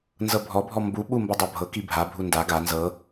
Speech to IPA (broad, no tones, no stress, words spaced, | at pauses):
nzɤbʱɔbʱɔ mbuɓu mbɤdˤabʱɤki bʱabʱu nda ɡa nzɤ